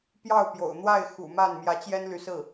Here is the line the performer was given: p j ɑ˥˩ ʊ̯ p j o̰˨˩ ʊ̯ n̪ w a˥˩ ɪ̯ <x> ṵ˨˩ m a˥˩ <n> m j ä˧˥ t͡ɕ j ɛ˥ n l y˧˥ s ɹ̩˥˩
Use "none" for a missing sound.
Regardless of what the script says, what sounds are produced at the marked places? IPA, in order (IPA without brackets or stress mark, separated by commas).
x, n